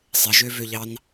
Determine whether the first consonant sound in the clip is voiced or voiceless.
voiceless